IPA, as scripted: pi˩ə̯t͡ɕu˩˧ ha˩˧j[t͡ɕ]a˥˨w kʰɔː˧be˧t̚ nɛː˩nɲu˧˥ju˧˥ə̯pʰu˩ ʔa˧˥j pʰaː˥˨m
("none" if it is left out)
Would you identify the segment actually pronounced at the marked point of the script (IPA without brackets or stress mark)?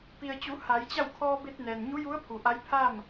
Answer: t͡ɕ